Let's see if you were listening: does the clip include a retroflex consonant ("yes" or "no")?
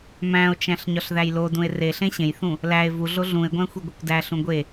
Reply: no